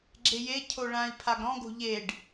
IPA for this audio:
ɡ͡ǁ e j e cʰ o ɭ ã i̯ pʰ a ɡ ɾ ɔ̃ ɡ o̤ ʎ e ɖ

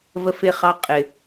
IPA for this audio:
v ə˦ f ɪ˦˨ χ ɑ˦ qʼ ɪ˨

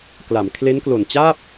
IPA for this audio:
k l a˩˦ m kʰ l e˦˥ n k l o˨˩ n t͡ɕ aː˥˩ p̚

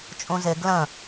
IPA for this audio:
t͡ʃʼ ũ z ɪ ɡ l ə̃

